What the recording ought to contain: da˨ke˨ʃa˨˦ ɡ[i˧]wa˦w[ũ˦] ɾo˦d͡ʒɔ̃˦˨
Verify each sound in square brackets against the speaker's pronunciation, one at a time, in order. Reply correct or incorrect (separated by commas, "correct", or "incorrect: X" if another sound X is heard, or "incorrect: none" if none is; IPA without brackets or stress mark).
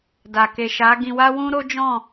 incorrect: ĩ˧, correct